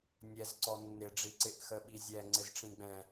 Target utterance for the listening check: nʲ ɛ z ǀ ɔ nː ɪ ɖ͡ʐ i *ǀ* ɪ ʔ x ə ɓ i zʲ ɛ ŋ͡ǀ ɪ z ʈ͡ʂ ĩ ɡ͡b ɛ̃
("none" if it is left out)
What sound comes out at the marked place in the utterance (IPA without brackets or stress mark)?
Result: ǀ